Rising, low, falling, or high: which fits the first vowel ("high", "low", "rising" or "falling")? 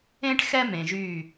high